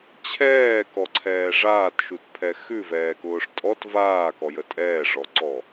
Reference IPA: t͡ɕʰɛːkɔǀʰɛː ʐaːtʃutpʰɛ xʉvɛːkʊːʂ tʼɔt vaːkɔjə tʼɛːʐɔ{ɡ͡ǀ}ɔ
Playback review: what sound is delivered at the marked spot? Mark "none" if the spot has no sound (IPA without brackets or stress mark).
ǀ